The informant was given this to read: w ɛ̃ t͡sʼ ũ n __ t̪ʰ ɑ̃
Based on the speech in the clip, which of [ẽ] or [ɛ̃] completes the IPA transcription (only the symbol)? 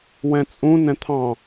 ɛ̃